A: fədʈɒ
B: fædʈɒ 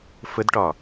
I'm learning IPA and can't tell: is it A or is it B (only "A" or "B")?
A